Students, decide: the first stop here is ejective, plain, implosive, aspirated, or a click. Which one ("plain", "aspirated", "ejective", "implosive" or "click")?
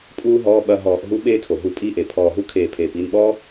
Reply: ejective